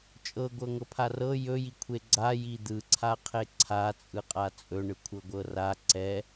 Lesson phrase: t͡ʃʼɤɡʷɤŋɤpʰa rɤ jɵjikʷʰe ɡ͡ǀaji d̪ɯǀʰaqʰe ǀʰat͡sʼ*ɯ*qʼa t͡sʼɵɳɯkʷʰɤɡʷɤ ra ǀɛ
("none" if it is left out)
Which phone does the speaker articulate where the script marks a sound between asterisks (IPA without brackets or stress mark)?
ɯ